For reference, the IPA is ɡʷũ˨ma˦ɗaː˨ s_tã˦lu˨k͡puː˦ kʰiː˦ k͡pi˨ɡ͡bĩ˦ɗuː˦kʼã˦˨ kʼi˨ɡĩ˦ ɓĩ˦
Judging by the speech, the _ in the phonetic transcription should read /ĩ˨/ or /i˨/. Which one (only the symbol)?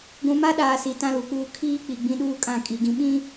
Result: i˨